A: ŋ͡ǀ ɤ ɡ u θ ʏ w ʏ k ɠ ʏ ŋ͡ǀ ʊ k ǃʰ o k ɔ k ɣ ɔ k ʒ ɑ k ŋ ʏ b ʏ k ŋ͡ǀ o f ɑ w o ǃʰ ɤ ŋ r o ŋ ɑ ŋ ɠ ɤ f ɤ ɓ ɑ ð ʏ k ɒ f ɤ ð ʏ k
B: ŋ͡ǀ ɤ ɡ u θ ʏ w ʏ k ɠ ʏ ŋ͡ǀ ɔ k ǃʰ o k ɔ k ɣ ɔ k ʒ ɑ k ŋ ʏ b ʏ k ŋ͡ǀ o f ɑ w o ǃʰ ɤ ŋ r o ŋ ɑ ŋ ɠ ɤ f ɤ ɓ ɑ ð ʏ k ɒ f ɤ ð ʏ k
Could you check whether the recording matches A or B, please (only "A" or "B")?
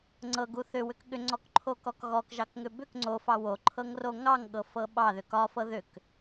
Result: B